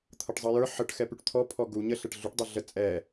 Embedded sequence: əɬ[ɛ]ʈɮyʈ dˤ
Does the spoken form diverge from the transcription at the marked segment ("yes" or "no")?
no